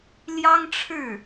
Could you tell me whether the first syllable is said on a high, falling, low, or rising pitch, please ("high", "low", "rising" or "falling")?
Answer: high